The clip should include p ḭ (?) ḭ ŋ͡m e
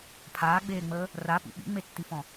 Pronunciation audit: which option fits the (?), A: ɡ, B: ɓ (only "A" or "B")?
B